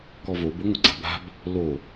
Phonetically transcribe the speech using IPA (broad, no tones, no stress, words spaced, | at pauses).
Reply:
kɔvobʊ ŋʷɪɡ͡ǀa̤ba̤b | lo